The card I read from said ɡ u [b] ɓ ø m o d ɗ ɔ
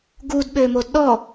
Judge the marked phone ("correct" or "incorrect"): incorrect